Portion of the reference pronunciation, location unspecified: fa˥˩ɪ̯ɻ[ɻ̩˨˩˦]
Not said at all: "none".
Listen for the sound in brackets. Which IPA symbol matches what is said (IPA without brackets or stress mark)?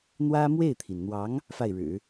ɻ̩˨˩˦